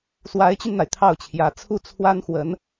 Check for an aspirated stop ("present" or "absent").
present